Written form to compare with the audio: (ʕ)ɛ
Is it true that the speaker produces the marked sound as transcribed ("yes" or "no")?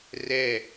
no